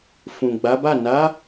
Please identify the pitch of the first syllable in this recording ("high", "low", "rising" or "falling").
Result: low